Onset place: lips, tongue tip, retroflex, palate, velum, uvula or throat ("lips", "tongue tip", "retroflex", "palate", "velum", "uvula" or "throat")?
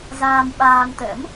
tongue tip